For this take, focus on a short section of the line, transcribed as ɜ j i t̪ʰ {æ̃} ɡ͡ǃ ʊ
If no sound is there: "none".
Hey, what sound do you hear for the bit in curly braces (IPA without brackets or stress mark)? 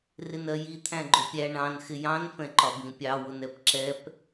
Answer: æ̃